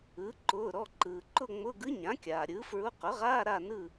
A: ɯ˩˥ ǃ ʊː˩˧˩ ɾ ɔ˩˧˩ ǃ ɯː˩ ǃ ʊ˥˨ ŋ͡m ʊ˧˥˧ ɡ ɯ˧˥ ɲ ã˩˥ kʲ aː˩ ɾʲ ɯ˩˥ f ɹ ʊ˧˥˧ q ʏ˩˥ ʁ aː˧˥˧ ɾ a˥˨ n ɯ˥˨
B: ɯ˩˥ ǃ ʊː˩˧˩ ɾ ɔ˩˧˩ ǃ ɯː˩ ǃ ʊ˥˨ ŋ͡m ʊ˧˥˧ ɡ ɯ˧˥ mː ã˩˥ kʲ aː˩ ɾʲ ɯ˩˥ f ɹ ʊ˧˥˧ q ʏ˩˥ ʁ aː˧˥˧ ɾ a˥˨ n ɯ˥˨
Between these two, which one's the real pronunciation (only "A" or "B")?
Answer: A